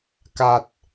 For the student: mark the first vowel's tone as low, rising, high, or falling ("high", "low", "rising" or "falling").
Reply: low